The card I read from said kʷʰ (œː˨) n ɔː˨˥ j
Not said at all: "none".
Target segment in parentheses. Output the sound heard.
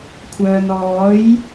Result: œː˨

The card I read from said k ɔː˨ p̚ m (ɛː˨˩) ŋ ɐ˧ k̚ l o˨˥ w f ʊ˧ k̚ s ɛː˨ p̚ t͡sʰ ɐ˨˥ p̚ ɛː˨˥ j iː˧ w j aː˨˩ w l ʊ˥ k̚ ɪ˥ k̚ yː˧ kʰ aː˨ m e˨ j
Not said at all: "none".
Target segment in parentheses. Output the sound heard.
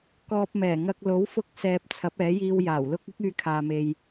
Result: ɛː˨˩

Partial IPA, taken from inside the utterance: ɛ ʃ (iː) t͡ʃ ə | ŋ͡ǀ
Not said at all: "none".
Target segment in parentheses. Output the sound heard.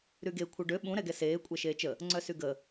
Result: eː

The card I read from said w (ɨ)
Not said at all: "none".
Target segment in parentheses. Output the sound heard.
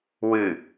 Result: ɨ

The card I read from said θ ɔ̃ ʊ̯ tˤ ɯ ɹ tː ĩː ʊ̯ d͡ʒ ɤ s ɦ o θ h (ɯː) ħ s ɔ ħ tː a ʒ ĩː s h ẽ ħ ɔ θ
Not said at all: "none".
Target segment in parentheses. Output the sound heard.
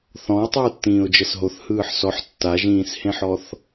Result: ɯː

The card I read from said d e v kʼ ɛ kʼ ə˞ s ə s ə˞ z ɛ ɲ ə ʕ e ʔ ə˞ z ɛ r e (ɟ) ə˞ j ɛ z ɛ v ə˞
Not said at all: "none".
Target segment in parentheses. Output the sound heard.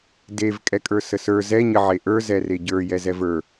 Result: ɟ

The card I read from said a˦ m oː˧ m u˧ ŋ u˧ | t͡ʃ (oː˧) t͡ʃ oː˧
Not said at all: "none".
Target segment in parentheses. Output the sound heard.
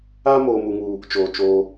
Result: oː˧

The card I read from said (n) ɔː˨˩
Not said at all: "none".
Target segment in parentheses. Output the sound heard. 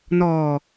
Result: n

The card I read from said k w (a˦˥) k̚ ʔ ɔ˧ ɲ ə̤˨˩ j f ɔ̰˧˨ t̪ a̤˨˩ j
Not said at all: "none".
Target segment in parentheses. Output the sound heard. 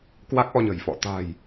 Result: a˦˥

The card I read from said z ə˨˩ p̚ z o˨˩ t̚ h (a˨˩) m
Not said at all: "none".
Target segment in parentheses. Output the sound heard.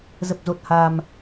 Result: a˨˩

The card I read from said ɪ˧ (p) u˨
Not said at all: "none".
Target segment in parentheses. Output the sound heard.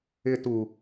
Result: t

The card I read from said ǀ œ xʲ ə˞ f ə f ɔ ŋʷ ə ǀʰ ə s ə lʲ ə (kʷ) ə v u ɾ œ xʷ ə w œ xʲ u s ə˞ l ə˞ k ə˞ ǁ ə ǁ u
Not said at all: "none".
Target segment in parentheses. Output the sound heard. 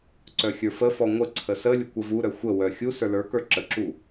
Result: kʷ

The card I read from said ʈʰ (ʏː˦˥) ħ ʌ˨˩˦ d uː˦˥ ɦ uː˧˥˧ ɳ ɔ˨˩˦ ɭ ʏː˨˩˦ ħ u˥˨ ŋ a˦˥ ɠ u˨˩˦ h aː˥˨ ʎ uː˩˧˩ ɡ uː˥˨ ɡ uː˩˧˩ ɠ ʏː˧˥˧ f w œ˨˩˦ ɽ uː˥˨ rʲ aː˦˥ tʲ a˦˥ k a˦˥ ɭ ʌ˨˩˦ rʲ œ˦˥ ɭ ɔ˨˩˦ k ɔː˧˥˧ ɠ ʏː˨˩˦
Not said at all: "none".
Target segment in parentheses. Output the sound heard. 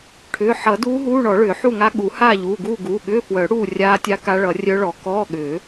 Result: ʏː˩˧˩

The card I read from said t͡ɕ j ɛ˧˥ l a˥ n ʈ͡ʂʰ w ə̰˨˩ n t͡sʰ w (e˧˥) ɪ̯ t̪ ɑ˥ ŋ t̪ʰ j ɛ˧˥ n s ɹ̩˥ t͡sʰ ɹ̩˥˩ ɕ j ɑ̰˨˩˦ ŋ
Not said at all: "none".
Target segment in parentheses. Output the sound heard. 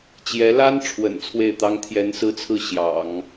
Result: e˥˩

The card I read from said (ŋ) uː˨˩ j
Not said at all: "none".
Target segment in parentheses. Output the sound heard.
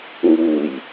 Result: ŋ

